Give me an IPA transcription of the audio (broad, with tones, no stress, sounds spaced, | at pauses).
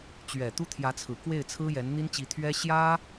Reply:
t͡ɕ ɥ ɛ˨˩ t̪ u˥ t̪ʰ j ä˧˥ t͡sʰ ɹ̩˨˩ k w e˥˩ ɪ̯ t͡sʰ ɹ̩˥ j ɛ˧˥ n n̪ i˥ n t͡ɕ i˧˥ t̪ʰ ɥ ɛ˥ ɕ j ä˥